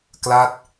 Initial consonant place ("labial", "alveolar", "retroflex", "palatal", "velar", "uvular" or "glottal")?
velar